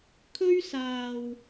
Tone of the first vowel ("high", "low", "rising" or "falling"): high